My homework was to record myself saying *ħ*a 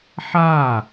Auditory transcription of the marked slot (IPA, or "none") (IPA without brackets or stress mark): ħ